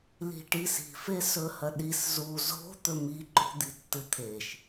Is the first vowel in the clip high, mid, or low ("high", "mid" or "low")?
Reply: high